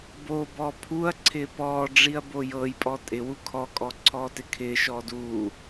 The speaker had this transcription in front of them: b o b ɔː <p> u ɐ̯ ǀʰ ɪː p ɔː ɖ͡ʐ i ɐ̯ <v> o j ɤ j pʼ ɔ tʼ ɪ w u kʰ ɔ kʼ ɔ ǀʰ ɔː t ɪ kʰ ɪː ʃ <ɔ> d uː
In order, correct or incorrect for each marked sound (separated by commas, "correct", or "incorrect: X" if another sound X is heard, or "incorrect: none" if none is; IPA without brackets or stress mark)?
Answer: incorrect: pʰ, incorrect: b, incorrect: ɔː